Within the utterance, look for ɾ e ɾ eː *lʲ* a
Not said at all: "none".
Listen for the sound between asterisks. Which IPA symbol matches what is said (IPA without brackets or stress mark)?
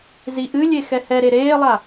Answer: lˠ